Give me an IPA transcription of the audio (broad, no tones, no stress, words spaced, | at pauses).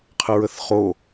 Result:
qʰəɹəθχo